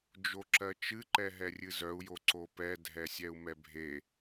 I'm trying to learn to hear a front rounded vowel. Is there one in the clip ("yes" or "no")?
yes